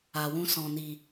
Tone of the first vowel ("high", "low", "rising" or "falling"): low